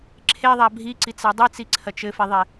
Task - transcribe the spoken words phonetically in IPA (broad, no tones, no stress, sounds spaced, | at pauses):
ǁʰ e ðˤ a bʱ i ǀ i t͡s a dˤ i t͡s i ǀʰ ɐ t͡ʃ ɘ f e ðˤ e